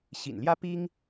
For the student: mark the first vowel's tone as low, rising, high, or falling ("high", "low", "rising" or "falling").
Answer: low